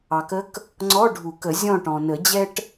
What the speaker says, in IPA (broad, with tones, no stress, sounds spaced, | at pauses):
ɑ˩ k ə˧˥ k | ŋ͡ǀ ɔ˧˥˧ ɖʱ u˨˩˦ k ə˨˩˦ zʲ ɔ̃˦˨ ʈ ɔ̃˩ n ə˨˩˦ d͡ʑ ɛ˥ ʈ